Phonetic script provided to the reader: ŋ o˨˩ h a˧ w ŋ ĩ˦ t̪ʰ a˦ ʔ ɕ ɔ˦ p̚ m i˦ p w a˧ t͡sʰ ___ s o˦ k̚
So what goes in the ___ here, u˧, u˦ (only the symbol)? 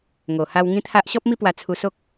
u˧